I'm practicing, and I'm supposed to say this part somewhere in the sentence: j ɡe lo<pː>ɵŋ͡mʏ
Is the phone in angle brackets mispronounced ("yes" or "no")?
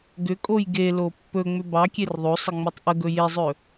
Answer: no